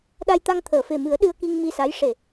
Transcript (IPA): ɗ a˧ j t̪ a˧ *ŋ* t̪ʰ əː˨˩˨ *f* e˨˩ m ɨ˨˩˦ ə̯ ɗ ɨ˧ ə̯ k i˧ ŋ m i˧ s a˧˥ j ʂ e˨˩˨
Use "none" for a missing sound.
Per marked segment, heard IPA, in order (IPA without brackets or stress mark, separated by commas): ŋ, f